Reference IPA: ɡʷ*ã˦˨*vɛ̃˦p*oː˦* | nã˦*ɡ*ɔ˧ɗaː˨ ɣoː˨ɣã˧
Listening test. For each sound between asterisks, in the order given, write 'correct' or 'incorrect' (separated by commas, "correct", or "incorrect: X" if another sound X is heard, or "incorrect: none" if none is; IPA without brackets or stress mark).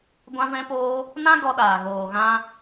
incorrect: ã˦, correct, correct